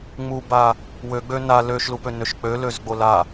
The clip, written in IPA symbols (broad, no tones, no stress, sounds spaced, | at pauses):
ŋ͡m u b a | w ø ɡ͡b ø n a l ø ʃ l u p ø n ø ʃ k͡p ø l ø z ɡ͡b o l a